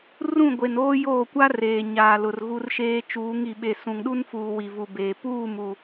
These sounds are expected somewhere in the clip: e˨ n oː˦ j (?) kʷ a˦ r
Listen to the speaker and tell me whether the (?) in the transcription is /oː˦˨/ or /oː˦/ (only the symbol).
oː˦˨